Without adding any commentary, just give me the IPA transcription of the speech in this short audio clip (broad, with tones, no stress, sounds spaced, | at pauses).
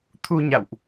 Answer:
t̪ʰ u˧ ɲ a̰˧˨ w ʔ